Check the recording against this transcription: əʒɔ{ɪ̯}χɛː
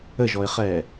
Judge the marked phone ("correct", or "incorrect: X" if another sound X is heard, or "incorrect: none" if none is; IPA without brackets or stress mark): correct